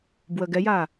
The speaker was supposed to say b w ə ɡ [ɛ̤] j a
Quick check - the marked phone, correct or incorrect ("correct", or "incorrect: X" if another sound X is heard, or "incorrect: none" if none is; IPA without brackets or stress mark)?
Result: incorrect: ɛ